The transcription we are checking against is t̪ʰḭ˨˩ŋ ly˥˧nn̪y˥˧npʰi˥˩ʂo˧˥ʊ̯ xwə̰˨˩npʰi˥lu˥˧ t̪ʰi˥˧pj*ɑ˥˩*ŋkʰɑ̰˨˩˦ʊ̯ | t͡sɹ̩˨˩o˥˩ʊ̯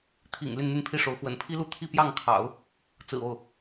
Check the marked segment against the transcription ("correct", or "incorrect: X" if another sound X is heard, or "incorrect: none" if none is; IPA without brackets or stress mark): correct